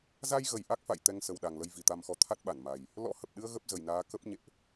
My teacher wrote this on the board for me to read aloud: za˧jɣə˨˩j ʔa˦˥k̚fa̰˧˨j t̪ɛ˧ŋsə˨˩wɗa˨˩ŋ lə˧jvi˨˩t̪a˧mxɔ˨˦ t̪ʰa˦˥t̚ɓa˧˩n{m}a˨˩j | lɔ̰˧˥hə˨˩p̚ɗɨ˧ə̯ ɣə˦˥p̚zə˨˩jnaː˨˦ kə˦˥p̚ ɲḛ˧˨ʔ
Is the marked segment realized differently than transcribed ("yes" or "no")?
no